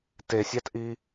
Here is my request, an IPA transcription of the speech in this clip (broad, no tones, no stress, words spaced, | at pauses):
tesʲɑtʔi